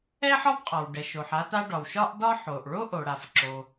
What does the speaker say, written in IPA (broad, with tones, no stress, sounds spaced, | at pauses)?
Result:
ɛ˥ ħ ɒ˥ b qʼ ɒ˩ w ɖ ɛ˩ ʃ o˩ ħ a˥ t a˥ ɖ ɒ˩ w ʃ ɒ˥ ʔ d ɒ˥ ħ o˩ ʔ ɭ o˥ ʔ o˩ ɽ a˩ f ǁ o˩